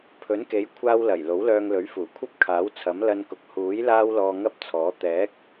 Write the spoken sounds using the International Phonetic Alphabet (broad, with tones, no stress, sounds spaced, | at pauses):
pʰ ɵ˨˥ n k e˨˥ j kʷʰ aː˧ w l ɐ˨˩ j l o˨˥ w l œː˧ ŋ l ɵ˨˥ ɥ f uː˨˩ kʷʰ ɐ˥ p̚ kʰ aː˨˥ w t͡sʰ ɐ˨˥ m l ɐ˧ n k ʊ˨ k̚ h uː˨˥ j l aː˥ w l ɔː˧ ŋ ɐ˥ p̚ t͡sʰ ɔː˨˥ t̪ ɛː˨˥ k̚